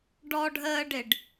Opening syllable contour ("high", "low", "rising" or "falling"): high